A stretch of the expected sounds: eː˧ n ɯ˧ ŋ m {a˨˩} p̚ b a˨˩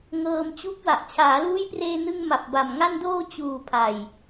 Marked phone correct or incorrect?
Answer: correct